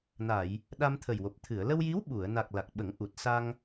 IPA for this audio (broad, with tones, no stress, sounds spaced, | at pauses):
n a˨˩˨ j | ɗ a˧ m t̪ʰ ə˨˩ j w o˨˩ p̚ t̪ʰ ɨ˨˩˨ ə̯ l ə˧ w j i˧˥ w ɓ u˨˩˨ ə̯ n a˨˩ k̚ l a˨˩ k̚ ɓ ə˨˩˦ ŋ ʔ u˨˩ t̚ s a˧ ŋ